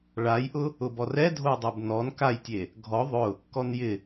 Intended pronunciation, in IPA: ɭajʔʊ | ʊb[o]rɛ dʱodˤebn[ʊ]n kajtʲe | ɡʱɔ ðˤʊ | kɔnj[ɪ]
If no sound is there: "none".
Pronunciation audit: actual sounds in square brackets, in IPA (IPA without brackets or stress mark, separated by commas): ɔ, ɔ, ɪ